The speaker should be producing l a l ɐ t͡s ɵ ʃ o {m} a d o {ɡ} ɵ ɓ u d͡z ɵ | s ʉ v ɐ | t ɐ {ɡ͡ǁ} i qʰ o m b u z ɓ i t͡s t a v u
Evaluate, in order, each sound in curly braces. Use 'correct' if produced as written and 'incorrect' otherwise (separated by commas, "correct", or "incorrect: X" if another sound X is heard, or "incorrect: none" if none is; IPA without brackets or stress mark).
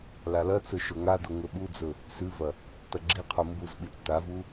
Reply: incorrect: ŋ, incorrect: ŋ, correct